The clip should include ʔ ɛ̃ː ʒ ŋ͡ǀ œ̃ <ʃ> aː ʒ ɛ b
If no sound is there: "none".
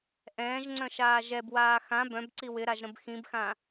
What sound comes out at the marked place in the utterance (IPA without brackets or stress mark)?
ʃ